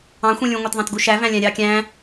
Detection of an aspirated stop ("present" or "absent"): absent